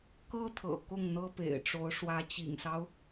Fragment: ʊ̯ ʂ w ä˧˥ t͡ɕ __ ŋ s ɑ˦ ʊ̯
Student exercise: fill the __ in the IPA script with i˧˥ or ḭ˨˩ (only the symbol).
ḭ˨˩